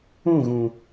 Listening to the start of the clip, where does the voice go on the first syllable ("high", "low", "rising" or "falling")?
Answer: falling